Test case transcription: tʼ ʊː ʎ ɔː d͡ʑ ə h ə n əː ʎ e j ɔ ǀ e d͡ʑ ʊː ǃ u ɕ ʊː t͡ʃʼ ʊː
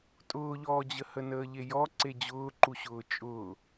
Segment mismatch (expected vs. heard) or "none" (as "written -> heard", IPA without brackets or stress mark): none